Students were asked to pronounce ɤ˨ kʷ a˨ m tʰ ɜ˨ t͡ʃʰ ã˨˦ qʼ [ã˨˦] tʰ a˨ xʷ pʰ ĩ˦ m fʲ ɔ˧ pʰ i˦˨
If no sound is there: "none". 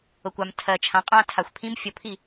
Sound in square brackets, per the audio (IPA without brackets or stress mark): ã˧